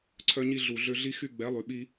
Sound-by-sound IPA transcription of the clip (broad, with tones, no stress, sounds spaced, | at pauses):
ǀʰ œ˧ ɲ i˧ ɮ u˨ ɮ ø˧ ɮ i˧ x y˧ ɡ͡b ɛ˨˦ lˠ y˨ ɓ i˧